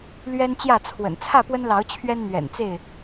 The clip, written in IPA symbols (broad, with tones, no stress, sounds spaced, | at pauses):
l ɥ ɛ˦ n t͡ɕ j ä˥˨ t͡sʰ w ə̰˨˩ n t͡sʰ ä˥˨ p w ə˦ n l ɑ˨˦ ʊ̯ t͡ɕʰ ɥ ɛ˦ n n̪ ɥ ɛ̰˨˩ n t͡s e˥˨ ɪ̯